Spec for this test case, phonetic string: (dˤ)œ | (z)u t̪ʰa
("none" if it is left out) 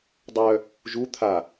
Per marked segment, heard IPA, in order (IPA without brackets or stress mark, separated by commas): dˤ, ʒ